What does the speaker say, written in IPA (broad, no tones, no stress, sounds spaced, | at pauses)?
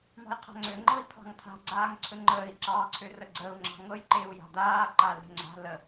m ɑ̤ j qʰ a̤ ŋ͡ǀ ø ŋ͡ǃ ɤ i̯ pʰ ɑ̤ ŋ tʰ a̤ ɡ͡ǀ aː ŋ ǀʰ ɵ ŋ͡ǃ əː i̯ ǁ ɑ ǀʰ ø r ə ɡ͡ǀ əː u̯ ŋ͡ǁ ɑ̤ ŋ ɤ j ǃ e u̯ j a̤ d aː ǃ a l e̤ ŋ͡ǁ a̤ l ə